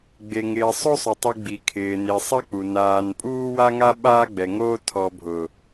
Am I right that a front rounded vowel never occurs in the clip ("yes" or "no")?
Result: yes